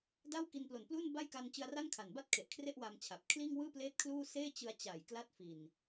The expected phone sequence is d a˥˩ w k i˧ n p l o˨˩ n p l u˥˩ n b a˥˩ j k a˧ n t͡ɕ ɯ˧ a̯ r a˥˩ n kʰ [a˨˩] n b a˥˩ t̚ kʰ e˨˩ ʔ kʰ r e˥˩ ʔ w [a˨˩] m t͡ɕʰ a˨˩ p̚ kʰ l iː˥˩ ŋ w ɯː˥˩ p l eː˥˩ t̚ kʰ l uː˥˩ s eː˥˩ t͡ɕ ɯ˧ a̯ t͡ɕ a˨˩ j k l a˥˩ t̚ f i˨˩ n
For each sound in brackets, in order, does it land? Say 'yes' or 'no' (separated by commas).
yes, no